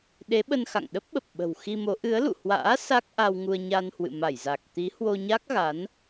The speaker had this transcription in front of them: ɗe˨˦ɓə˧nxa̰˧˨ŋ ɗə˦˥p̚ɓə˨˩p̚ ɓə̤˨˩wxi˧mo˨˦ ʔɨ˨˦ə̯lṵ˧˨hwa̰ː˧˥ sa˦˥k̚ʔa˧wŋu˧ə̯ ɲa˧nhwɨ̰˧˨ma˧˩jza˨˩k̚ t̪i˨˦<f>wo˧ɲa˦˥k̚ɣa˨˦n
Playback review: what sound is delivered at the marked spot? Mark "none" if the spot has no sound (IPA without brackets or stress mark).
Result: h